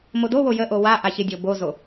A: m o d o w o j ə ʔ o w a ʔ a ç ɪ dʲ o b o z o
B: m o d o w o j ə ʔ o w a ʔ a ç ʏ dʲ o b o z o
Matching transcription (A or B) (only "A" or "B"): A